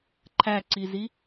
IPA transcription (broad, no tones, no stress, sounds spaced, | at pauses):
ǃʰ æ ǀ i z i